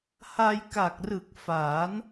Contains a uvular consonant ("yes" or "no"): no